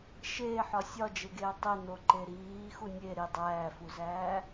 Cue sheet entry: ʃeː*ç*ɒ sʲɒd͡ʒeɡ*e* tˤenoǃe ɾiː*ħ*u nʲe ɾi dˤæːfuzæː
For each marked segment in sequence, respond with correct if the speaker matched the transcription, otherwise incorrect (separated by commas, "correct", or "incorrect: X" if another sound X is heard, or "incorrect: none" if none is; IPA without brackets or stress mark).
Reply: incorrect: ħ, incorrect: eː, incorrect: x